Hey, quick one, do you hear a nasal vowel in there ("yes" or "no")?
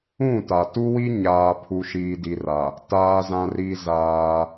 yes